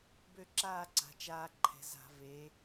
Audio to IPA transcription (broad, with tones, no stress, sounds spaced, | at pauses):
b ø˥˧ ǁ aː˥˧ ǀ a̤˩˧ t͡ʃ aː˧ ǃʰ ɛ̤˩˧ z a̤˧˩˧ v e˩˧